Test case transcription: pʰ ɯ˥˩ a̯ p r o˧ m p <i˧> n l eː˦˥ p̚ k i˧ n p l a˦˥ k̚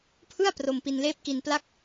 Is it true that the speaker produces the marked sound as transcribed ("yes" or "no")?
yes